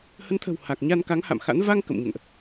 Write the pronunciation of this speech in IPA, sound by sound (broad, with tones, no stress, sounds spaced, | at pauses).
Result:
h ə˨˦ n t̪ʰ ə̤˨˩ w h a˨˩ k̚ ɲ a˧ n k a˨˦ ŋ h a̰˧˨ m x a̰˧˥ n v a˧ ŋ k ə̰˧˨ m ɲ ə̰˧˨ n ʔ